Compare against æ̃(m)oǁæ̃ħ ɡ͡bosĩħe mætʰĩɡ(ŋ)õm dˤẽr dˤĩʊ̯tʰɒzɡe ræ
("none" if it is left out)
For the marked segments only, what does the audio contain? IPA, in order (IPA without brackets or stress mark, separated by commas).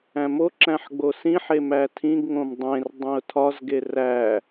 m, ŋ